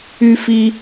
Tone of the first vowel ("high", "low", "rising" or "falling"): high